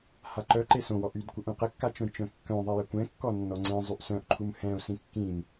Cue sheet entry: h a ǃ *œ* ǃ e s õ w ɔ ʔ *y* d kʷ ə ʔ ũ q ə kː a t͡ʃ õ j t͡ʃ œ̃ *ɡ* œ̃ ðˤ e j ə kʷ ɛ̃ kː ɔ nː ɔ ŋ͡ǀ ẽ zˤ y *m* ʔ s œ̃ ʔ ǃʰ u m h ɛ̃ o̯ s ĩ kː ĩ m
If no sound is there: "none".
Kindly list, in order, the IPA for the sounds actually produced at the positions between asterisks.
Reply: œ, y, kː, none

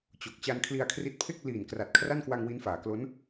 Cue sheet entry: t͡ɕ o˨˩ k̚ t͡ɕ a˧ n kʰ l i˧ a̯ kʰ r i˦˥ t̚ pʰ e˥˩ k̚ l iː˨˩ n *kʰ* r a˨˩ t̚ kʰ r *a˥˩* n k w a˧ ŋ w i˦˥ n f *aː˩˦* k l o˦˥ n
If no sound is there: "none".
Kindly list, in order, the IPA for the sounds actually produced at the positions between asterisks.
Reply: k, a˥˩, aː˩˦

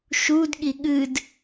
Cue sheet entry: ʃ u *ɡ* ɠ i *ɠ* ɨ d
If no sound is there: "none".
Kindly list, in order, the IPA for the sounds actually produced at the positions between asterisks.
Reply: d, ɠ

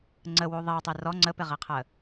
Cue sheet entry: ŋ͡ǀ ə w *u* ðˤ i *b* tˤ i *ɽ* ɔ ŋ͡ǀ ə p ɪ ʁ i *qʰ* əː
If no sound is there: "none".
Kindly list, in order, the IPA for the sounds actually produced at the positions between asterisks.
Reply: u, w, r, qʰ

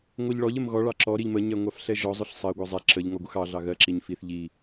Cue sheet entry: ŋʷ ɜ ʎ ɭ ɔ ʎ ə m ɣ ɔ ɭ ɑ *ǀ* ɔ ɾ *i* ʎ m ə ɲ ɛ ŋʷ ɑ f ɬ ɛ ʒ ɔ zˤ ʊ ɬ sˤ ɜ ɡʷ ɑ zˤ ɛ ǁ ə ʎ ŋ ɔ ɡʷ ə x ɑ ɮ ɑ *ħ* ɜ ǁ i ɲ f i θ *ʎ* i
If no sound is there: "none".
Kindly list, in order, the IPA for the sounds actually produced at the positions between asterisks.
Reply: ǁ, i, ɣ, ʎ

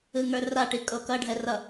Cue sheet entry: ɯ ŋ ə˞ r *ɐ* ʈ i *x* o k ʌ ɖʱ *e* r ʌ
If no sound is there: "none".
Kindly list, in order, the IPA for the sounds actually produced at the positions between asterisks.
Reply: a, kʼ, ɛ

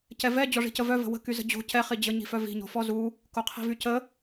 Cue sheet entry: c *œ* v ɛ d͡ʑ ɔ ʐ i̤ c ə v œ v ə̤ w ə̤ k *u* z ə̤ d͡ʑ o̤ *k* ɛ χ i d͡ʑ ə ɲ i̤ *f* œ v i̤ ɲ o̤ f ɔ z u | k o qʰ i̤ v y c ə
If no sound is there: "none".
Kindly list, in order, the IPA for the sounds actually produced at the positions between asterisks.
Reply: ɛ, y, c, f

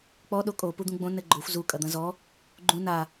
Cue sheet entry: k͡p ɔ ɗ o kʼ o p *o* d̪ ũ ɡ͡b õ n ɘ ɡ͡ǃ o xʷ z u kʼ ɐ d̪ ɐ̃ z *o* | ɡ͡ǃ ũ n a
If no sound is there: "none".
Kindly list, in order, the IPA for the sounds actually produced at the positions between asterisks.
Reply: u, ɔ

